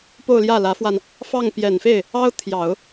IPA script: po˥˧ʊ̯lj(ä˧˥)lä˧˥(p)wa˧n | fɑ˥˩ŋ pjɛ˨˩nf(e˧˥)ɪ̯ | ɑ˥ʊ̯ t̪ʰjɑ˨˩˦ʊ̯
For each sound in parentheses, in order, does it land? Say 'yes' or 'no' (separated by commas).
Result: no, no, no